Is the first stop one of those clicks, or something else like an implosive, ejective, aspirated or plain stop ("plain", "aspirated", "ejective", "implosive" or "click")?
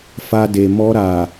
plain